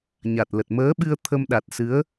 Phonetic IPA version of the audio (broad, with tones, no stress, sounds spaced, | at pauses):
ɲ a˨˩ t̚ l ə˨˩ t̚ m əː˨˦ ɓ ɨ˧ ə̯ t̪ʰ ə˧ m ɗ a˨˩ t̚ s ɨ˨˦ ə̯